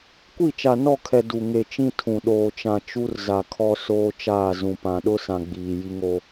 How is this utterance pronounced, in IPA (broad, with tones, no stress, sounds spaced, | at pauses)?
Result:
kʷ i˦˨ t͡ʃ a˨ n ɔ˦˨ kʰ ɛ˨ d u˨ ŋ e˨ t͡ʃ ĩ˦ tʰ ũ˨ ɗ oː˨ t͡ʃ ã˨ t͡ʃ u˦ r z a˨ kʰ ɔ˦ s oː˦ t͡ʃ aː˦˨ z ũ˨ p ã˨ ɗ ʊ˦ s ã˨ ɡ͡b iː˨ j i˦ ŋ o˦